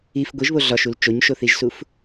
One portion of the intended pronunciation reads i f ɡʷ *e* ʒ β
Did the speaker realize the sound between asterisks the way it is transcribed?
no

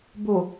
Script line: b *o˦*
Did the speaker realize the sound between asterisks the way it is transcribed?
no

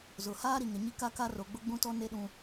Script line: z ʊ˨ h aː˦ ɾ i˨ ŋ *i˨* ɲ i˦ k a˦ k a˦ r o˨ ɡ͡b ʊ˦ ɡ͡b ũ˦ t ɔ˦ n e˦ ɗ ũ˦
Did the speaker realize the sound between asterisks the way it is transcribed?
no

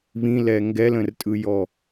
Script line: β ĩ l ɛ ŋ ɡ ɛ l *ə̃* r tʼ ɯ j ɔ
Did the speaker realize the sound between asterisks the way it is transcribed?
yes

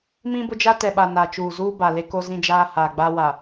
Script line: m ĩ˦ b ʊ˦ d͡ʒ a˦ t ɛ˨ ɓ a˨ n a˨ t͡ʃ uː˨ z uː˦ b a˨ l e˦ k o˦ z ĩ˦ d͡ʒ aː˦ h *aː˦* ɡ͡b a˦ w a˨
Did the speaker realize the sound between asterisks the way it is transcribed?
no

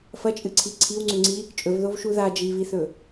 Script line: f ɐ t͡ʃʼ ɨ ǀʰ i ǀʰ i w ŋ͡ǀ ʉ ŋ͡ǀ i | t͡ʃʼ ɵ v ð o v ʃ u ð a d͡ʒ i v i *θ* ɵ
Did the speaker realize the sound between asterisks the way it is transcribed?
yes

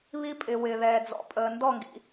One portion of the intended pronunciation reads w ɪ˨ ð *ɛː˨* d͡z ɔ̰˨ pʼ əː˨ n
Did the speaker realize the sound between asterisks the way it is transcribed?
yes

